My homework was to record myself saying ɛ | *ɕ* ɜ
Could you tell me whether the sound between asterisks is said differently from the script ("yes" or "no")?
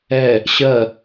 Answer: no